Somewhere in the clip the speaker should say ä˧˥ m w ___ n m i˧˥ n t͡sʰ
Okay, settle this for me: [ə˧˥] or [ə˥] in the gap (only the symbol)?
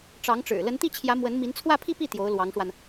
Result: ə˧˥